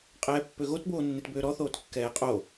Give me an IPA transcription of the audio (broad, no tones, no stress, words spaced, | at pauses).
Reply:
qʼɛːpːøɣot boːnːetbøːɾɔ θoːtkːɛːqʼo